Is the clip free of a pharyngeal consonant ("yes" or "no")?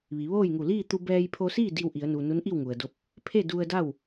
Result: yes